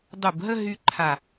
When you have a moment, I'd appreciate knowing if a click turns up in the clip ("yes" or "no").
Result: yes